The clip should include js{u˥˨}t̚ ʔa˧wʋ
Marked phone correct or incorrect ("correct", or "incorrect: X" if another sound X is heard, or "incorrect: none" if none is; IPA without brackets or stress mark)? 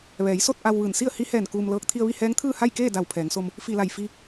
incorrect: o˥˨